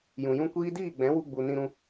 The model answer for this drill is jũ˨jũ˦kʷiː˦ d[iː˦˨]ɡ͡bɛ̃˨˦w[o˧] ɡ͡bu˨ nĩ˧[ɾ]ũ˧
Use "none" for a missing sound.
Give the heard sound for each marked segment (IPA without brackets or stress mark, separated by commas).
iː˦˨, u˧, ɾ